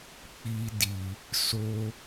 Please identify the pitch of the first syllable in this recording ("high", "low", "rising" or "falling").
high